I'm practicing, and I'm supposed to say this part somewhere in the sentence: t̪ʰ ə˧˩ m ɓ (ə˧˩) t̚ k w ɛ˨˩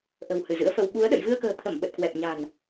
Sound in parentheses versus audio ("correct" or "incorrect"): incorrect